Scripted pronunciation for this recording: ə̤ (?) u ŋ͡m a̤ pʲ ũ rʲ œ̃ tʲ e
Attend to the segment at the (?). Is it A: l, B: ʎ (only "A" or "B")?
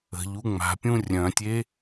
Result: B